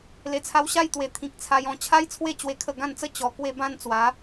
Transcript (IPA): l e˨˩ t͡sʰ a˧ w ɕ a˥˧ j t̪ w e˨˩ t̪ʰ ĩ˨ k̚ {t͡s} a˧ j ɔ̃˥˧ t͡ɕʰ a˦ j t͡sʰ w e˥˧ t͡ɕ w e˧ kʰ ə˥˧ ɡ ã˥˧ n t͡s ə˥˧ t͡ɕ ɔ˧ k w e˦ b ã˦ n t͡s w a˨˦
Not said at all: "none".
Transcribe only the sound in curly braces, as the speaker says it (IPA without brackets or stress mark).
t͡sʰ